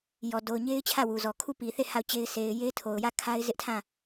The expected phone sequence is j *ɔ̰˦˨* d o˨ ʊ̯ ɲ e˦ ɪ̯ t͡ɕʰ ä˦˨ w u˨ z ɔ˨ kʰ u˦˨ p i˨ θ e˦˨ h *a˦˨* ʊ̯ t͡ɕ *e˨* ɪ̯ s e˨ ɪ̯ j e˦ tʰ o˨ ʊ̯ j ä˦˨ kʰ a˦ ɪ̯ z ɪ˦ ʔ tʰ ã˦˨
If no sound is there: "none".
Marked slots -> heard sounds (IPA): ɔ˨, a˦˨, e˦

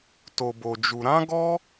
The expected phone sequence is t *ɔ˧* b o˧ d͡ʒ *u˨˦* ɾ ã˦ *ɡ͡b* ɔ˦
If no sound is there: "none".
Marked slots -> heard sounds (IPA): o˧, u˧, ɡ

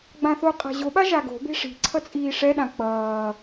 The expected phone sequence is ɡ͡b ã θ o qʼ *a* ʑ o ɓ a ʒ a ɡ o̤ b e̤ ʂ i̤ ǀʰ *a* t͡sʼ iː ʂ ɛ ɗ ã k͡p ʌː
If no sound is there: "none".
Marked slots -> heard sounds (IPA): a̤, ʌ

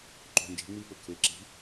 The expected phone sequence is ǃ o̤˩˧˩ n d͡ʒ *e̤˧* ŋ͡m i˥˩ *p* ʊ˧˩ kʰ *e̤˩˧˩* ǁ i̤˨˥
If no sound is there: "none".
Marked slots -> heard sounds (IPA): e̤˨˥, p, e˩˧˩

